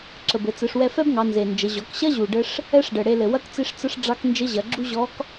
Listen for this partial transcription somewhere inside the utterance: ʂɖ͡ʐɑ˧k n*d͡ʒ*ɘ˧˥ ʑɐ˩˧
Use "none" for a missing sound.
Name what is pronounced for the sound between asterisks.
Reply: d͡ʒ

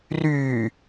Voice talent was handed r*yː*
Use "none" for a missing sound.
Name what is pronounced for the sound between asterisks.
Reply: yː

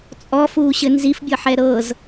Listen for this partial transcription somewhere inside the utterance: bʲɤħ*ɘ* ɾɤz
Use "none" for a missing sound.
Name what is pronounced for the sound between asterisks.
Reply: ɛ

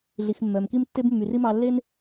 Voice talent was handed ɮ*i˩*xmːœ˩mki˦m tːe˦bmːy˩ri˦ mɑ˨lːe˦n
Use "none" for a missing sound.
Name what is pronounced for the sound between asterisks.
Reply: i˩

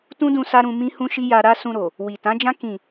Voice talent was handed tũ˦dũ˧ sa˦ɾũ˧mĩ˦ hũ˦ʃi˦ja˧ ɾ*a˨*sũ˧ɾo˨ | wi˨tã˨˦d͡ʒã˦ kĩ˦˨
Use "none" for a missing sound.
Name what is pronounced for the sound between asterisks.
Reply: a˦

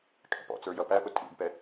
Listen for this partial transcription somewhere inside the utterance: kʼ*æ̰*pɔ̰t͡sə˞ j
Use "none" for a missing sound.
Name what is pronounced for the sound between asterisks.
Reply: æ̰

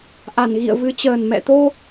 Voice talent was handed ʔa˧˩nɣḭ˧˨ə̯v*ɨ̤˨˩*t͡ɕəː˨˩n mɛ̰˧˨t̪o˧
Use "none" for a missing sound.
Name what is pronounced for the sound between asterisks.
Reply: ɨ˨˦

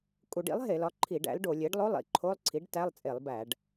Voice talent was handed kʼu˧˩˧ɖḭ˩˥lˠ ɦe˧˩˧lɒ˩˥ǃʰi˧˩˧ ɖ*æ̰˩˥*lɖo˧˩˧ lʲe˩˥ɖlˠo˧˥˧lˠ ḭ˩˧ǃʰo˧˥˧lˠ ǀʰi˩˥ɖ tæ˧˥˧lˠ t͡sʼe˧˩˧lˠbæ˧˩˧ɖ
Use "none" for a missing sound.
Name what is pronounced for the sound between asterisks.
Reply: æ̰˩˥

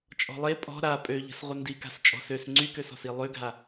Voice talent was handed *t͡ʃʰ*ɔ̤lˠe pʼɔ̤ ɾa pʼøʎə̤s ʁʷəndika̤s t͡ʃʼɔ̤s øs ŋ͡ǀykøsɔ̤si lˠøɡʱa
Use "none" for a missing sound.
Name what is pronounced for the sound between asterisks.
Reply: t͡ʃʼ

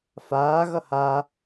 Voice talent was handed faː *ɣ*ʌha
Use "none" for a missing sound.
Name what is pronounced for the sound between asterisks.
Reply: ɣ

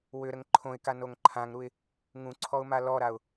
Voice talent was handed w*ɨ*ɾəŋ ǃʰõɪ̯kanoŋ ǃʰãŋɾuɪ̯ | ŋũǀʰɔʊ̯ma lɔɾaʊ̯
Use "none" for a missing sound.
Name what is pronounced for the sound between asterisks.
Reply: ʏ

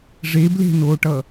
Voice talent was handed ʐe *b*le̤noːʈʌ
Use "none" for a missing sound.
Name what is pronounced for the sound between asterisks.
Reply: b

